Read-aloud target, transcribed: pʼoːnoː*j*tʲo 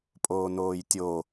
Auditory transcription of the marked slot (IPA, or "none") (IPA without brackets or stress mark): j